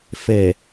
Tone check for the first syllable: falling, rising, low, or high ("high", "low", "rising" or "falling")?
low